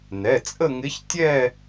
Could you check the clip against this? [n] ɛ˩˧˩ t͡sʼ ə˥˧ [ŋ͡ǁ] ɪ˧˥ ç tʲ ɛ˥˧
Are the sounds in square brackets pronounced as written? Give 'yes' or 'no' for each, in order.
yes, no

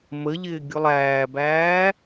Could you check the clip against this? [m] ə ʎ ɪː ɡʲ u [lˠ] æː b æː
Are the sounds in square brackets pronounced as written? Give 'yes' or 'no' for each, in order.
yes, yes

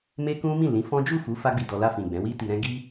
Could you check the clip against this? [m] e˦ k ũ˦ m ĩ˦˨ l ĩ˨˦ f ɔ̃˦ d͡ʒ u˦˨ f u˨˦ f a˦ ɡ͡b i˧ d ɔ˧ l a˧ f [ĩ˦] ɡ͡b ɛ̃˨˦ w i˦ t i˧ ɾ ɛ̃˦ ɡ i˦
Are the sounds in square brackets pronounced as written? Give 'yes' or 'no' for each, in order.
yes, no

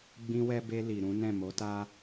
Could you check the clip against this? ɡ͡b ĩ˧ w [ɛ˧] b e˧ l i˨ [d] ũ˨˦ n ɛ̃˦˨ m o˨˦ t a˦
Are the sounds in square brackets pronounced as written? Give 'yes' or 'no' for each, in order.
yes, no

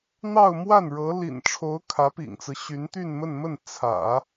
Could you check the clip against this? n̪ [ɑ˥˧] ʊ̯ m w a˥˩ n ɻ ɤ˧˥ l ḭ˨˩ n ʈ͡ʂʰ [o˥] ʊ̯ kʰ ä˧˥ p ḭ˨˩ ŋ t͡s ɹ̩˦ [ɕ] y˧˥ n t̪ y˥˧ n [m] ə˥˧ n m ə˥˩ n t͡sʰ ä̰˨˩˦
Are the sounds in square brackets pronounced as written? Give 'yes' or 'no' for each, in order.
yes, no, yes, yes

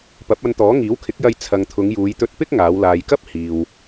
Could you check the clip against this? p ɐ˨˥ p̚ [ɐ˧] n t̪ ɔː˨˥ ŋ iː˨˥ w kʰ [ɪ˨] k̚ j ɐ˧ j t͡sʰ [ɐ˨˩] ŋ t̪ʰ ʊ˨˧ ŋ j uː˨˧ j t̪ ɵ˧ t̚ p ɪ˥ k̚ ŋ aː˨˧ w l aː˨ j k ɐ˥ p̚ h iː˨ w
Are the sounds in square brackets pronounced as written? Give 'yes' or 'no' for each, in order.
yes, no, no

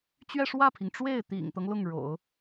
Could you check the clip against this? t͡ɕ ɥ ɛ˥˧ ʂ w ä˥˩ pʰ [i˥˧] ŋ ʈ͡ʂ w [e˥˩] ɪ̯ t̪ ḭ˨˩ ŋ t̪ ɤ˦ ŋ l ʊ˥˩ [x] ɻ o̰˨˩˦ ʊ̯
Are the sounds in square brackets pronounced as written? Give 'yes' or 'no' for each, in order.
no, yes, no

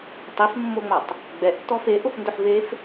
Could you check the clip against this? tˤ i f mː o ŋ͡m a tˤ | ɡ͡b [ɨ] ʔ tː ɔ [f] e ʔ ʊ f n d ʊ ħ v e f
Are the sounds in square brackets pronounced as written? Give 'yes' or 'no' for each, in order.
no, yes

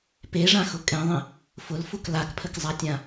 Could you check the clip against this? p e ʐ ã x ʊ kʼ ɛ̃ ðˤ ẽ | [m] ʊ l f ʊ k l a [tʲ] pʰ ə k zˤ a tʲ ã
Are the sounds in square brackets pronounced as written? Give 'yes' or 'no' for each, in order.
no, no

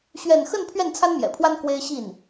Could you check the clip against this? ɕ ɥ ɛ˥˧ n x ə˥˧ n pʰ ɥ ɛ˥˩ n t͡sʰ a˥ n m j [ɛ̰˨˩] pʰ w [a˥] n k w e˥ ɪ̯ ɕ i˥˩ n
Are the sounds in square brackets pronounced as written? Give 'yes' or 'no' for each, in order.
yes, yes

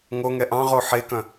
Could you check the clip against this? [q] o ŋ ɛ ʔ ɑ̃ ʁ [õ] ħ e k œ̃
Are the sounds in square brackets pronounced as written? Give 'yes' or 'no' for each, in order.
no, no

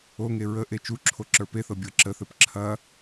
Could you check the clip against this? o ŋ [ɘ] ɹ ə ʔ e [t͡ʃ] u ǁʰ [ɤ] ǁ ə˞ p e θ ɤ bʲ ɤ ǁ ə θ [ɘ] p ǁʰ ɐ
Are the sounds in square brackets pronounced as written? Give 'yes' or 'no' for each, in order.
no, yes, no, yes

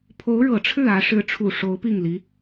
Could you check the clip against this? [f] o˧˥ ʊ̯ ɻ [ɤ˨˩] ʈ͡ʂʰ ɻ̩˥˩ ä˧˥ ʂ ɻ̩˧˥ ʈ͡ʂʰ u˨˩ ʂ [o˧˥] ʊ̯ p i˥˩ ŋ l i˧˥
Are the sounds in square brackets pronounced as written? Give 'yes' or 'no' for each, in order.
no, yes, yes

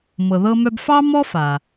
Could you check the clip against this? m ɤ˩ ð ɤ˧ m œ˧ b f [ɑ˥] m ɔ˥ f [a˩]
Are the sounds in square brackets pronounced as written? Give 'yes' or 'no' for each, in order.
yes, yes

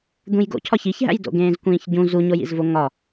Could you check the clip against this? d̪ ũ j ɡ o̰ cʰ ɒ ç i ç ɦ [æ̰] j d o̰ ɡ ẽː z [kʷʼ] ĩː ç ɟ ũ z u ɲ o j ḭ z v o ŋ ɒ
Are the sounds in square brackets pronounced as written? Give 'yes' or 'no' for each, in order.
yes, no

